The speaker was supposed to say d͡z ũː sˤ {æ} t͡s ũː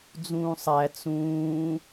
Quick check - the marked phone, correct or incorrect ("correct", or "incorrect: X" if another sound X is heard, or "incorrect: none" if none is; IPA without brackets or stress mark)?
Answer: correct